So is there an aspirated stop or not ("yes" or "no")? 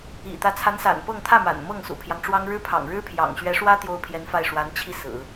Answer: yes